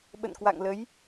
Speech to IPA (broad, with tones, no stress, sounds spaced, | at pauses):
ɓ ə̰˧˨ n k w a̰˧˨ ŋ l ə˨˦ j